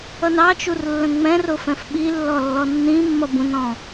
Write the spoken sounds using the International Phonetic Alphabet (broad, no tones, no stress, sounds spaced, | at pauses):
ʌ n ɑ t͡ʃ u r lː ə̃ ŋ͡m ɛ̃ r ʊ f ɛ̃ f ɓ i lː ɔ lː ɔ nː ĩ mː ʌ b ũ n ɔ̃